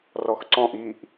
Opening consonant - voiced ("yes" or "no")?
yes